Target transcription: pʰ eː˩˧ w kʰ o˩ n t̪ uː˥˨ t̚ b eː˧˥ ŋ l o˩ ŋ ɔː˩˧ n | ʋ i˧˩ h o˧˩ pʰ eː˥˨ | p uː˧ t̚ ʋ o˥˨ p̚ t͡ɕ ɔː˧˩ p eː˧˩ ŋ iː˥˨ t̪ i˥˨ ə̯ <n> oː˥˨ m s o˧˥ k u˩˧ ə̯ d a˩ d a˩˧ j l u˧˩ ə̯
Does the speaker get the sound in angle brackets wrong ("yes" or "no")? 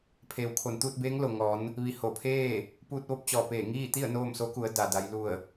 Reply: no